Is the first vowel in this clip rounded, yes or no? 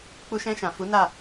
yes